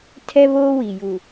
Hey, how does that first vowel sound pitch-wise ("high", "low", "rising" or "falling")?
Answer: high